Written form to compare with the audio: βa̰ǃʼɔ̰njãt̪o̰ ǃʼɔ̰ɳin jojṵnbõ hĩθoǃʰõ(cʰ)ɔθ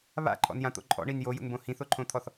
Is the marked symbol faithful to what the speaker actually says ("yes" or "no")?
no